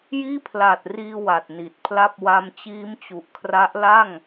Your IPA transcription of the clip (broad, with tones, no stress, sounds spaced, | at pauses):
j iː˥˩ pʰ l aː˨˩ t̚ r iː˧ w a˨˩ t̚ n i˨˩ t̚ pʰ l a˥˩ p̚ w a˧ m t͡ɕ iː˦˥ m t͡ɕ u˨˩ ʔ kʰ r a˦˥ ʔ l a˥˩ ŋ